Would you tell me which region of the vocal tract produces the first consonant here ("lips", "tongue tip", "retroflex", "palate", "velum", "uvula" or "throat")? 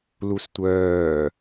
tongue tip